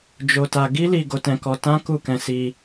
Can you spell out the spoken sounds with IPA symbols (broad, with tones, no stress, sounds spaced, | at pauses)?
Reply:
d͡ʒ o˨ t a˨ ɡ i˧ l i˨ ɡ o˨˦ t ɛ̃˧ k ɔ˧ t ã˦ k u˦˨ k ɛ̃˧ s i˧